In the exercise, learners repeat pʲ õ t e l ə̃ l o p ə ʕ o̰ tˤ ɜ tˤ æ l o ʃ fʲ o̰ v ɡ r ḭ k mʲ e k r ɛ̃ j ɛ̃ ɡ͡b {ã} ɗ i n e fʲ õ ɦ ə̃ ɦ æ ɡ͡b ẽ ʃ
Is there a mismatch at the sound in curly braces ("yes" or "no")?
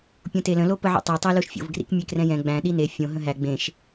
yes